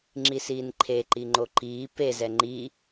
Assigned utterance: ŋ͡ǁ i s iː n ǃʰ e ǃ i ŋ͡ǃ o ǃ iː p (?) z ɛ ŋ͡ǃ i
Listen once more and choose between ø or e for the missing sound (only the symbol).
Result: e